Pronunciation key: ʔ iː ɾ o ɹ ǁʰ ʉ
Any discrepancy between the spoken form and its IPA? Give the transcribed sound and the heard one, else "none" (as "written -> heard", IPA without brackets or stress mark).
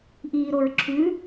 none